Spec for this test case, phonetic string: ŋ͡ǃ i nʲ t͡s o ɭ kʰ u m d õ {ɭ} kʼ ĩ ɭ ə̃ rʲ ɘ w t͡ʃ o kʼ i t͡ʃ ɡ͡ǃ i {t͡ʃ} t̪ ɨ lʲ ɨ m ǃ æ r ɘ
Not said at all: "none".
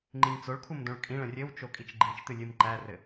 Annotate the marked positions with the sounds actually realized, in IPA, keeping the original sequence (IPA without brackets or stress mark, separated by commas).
ɭ, t͡ʃ